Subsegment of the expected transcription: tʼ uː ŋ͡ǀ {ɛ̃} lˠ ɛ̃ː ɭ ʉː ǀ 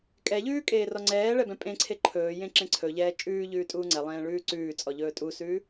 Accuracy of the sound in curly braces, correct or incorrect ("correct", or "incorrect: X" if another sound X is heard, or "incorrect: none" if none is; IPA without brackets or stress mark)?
incorrect: ɛ